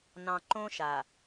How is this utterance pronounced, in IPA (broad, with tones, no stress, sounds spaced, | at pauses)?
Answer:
n ɑ̃˨ ǃ õ˦ ʃ a˨